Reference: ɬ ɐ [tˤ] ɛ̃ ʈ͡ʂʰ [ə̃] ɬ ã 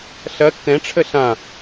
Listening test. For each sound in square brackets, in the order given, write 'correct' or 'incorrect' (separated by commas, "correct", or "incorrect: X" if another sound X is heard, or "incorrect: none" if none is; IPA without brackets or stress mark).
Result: incorrect: tː, incorrect: ə